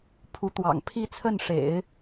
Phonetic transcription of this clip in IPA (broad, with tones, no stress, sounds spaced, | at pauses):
pʰ u˧˥ t̪ w ɑ̰˨˩ ŋ pʰ i˥˧ t͡sʰ ə˥˩ n ʂ ḛ˨˩˦ ɪ̯